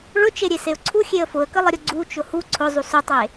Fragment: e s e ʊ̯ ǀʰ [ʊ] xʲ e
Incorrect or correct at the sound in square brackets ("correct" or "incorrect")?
incorrect